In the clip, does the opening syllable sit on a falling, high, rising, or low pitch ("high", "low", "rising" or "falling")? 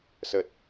low